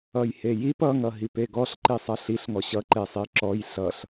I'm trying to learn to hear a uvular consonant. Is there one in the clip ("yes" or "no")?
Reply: no